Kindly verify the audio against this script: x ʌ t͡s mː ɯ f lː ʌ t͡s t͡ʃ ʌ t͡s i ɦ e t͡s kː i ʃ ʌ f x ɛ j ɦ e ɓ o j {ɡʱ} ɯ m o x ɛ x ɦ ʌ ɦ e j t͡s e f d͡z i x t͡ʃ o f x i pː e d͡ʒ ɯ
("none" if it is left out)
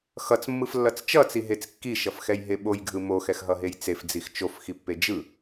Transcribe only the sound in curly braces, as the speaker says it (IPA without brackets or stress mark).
ɡʱ